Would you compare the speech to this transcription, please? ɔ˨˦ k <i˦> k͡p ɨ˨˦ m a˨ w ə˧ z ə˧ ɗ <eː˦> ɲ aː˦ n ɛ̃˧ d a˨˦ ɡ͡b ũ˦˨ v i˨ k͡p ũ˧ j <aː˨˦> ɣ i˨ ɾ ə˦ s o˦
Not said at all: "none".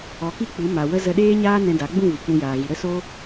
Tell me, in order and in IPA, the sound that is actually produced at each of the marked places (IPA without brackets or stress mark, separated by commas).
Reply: i˦, eː˦, aː˨